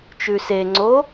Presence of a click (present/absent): present